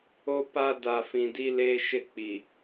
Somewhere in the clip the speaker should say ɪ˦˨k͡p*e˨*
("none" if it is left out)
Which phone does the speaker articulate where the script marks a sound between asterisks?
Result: i˨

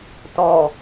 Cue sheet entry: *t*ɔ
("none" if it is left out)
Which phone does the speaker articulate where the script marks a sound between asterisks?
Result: t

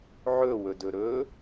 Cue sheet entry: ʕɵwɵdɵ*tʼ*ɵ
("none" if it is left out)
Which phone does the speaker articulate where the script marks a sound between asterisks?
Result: ɾ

